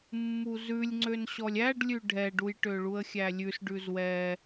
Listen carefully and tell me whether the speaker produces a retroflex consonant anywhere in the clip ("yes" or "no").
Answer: yes